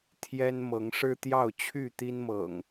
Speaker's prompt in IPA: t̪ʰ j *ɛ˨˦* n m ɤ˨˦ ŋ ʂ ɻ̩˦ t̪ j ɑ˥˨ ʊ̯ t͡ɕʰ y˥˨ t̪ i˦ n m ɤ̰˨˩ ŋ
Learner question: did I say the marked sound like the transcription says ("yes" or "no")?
no